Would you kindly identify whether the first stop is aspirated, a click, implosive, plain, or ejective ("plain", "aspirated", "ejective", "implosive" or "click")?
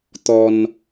plain